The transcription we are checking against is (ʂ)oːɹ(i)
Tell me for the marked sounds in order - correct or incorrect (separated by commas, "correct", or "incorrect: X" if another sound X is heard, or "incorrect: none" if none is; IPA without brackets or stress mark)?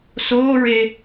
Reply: incorrect: s, incorrect: e